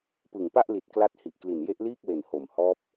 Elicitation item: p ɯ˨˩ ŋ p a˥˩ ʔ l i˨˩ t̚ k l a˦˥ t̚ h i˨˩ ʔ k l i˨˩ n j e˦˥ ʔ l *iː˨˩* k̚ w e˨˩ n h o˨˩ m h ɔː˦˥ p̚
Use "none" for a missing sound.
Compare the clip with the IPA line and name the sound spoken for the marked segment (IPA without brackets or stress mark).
iː˥˩